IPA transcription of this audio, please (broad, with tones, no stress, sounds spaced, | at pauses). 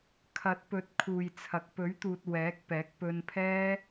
kʰ ɐ˨˥ t̚ p ɵ˨˥ t̚ kʰ uː˨ j t͡sʰ ɐ˨ k̚ p ɵ˨˥ ɥ t̪ uː˨ t̚ w ɛː˨˥ k̚ p ɛː˨˥ k̚ p ɵ˧ n pʰ ɛː˥